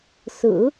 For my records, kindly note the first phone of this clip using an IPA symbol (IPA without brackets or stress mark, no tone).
s